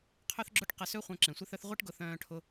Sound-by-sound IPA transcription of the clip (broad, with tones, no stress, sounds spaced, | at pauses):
qʰ œ˥ θ ɡ͡ǁ ʊ˥ ʈ q ə˧ s ø˥ χʷ œ̃˧ ǁ ẽ˩ sʷ ɪ˥ θ œ˥ θ ʁʷ i˥ ʈ ɡ ʊ˧ θ œ̃ː˧ ʈʰ ʊ˧